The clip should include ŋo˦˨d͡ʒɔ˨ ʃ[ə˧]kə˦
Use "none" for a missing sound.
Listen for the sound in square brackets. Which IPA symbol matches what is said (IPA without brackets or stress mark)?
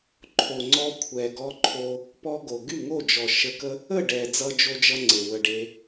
ə˧